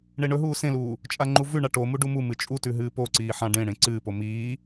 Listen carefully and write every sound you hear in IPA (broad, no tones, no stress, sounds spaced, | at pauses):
ɳ e ɳ ɵ ɦ uː s ẽ l uː | t͡ʃʼ a ŋ͡ǃ u v ʉ ɳ a ʈ o m u ɖ u m u m ɨ t͡ʃʼ u t ʉ ɦ ɨː p o ǀ iː ħ ã ɖ ẽ ɽ ẽ ǀ ɨː p o m iː